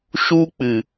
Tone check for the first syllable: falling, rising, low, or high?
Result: high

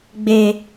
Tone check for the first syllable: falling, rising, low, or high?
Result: low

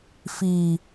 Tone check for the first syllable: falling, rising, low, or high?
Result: low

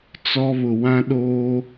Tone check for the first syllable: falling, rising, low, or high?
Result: high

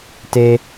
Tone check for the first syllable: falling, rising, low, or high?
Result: high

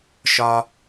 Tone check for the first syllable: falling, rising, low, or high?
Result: high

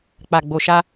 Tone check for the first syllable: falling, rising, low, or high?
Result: low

